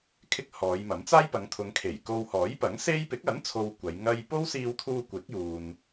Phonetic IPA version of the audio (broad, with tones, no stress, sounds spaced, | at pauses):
kʰ ɪ˧ k̚ h ɔː˨˧ j m ɐ˨˥ m t͡s aː˥ j p ɐ˨˧ ŋ t̪ʰ ʊ˨˧ ŋ kʰ e˨˩ j k o˧ w h ɔː˨˥ j p ɐ˨˥ ŋ s e˥ j p ɪ˨˥ k̚ ɐ˨˥ n t͡sʰ o˨ w kʷ ɐ˨˧ j ŋ ɐ˥ j p o˥ w s iː˧ w t̪ʰ uː˧ kʷ ɪ˨˥ k̚ j uː˨ n